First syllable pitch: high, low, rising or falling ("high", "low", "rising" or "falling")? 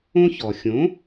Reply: high